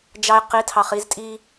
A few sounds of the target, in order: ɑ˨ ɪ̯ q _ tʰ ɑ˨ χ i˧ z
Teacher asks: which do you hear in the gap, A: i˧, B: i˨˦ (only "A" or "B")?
B